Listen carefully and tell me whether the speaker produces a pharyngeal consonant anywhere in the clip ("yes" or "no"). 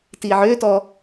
yes